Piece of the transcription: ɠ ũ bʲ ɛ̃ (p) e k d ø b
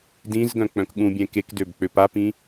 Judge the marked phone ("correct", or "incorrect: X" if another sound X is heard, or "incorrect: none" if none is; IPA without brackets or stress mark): incorrect: k